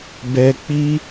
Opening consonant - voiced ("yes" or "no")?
yes